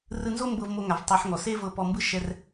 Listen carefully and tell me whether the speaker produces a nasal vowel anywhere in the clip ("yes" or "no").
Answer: no